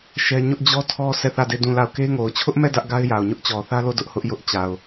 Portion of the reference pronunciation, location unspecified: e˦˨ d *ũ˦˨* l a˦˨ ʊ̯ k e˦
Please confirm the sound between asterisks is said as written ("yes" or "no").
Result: yes